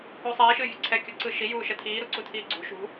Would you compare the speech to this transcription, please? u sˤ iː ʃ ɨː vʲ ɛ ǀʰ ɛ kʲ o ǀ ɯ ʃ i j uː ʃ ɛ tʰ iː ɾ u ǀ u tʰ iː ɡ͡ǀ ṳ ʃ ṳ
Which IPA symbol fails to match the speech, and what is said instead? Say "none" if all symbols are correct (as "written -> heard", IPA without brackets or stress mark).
none